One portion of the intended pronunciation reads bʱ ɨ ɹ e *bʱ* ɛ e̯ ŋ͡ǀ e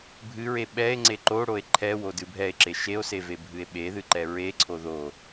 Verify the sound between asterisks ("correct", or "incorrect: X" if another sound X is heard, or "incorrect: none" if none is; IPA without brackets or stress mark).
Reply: incorrect: ɓ